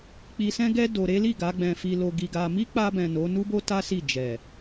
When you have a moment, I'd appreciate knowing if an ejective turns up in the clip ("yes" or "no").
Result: no